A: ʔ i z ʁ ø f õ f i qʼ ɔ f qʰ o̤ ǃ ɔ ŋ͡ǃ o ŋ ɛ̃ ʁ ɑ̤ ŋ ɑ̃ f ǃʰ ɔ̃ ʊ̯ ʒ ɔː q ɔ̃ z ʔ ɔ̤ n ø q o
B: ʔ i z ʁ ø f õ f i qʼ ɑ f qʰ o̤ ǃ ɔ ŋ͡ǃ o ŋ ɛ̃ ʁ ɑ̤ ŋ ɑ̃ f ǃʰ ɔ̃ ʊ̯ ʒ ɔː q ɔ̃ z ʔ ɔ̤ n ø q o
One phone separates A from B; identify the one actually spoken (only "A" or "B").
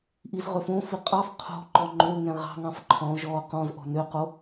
B